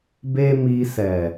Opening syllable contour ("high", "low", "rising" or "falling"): high